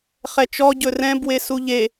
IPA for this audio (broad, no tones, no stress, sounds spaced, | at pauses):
χ ɛ t͡ʃ ɔ ɟ ɵ r ɛ̃ b w e s u ʎ e